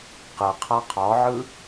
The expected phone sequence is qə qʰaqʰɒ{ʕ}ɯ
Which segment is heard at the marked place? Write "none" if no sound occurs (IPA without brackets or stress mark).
ʕ